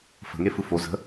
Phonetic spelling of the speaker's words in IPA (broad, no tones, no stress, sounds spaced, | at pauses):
f ə̤ ŋ e f ɯ f o z ə̤